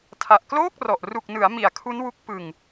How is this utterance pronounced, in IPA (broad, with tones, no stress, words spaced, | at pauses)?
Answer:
tʰa˨˩ʔkloː˥˩k̚rɔ˨˩ʔ ru˨˩k̚nɯ˩˦a̯ mi˨˩a̯kʰu˦˥nwu˦˥k̚ pɯ˧ŋ